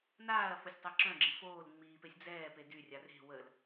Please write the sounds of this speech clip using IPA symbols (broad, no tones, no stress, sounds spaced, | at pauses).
n aː ɐ̯ f o sʲ tˤ e ǁ œ̃ ɡ͡ǁ ĩ f oː l ŋ͡m iː p e sʲ d͡z ɛː p e d y rʲ a r e̤ w ə l